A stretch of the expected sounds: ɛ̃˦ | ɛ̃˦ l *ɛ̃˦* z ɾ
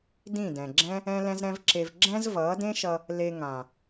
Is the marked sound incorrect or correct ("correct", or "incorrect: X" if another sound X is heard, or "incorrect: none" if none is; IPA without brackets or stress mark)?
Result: correct